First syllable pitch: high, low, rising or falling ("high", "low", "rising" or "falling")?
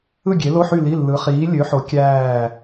falling